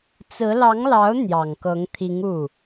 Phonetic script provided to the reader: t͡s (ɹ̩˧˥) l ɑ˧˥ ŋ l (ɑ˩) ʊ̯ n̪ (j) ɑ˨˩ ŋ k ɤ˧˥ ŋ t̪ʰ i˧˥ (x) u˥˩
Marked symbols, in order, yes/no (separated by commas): yes, no, yes, no